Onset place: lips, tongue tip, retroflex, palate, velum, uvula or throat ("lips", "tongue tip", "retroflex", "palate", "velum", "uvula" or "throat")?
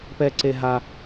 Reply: lips